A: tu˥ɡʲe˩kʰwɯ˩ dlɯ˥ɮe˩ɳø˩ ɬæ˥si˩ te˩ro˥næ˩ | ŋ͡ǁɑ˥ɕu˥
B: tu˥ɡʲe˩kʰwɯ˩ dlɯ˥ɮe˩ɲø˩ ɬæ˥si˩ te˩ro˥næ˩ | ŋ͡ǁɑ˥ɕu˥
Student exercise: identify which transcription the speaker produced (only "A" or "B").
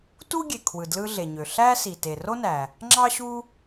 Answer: B